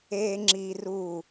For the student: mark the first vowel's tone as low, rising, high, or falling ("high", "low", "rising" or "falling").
high